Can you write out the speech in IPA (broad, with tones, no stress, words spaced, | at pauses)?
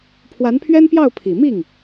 pʰwa˧˥npʰɥɛ˥npjɑ˥˩ʊ̯ pʰi˨˩mi˥˩ŋ